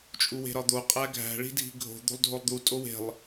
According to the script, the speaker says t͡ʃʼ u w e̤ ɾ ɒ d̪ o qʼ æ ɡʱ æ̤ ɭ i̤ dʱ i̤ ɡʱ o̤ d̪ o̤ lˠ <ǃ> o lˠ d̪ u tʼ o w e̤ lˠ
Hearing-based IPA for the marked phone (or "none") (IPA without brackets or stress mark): dʱ